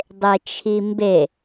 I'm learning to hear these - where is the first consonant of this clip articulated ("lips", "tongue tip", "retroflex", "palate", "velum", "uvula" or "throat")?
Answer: tongue tip